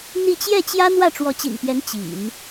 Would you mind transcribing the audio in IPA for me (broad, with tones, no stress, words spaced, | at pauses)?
n̪i˥˧ t͡ɕjɛ˥˩t͡ɕjä˥ n̪wä˥˩ʈ͡ʂwɔ˧˥t͡ɕḭ˨˩npjɛ˧˥n t͡ɕḭ˨˩˦n